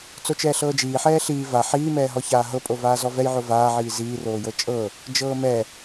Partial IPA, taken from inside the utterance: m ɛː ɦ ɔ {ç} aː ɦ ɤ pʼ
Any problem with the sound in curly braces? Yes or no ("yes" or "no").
no